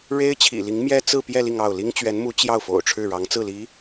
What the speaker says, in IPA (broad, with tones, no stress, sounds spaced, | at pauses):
ɻ e˥ ɪ̯ t͡ɕʰ ḭ˨˩ l i˧˥ ŋ m j ɛ˥ t͡s ɹ̩˥˧ p j ɛ˥˧ l i˥˧ ŋ ɑ˥˩ ʊ̯ l i˥ ŋ t͡ɕ ɥ ɛ˧˥ n m u˧˥ t͡ɕ j ɑ˥˩ ʊ̯ f o̰˨˩ ʊ̯ ʈ͡ʂʰ ɻ̩˥˩ ɻ ɑ˧˥ ŋ t͡s ɹ̩˥˩ l i˧˥